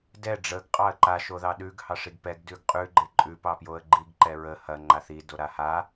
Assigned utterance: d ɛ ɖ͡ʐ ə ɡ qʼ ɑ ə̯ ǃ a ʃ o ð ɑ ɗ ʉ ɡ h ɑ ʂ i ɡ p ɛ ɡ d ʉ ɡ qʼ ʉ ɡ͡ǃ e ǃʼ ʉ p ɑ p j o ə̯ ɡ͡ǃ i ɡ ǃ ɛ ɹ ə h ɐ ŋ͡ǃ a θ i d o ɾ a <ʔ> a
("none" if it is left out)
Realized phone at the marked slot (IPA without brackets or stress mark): h